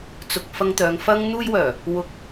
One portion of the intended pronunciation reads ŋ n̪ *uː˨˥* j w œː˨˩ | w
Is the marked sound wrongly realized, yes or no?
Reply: yes